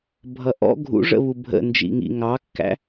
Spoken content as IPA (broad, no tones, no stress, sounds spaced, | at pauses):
bʱ ʌ ʔ ɔ̰ ɡʱ ṵ ʐ ə̰ β u bʱ ə̰ n d͡ʒ ḭ ŋ ḭ ŋ ɑ kː æ̰